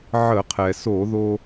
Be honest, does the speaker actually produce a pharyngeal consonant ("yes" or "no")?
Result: yes